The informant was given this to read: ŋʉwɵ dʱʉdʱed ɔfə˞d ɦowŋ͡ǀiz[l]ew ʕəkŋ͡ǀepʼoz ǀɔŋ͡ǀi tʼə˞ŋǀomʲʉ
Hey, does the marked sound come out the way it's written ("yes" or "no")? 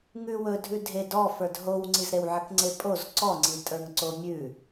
no